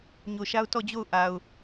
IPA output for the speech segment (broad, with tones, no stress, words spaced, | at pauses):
ɲo˨ʃa˦ʊ̯ tɔ˦˨d͡ʑo˦˨ʊ̯ ʔa˨ʊ̯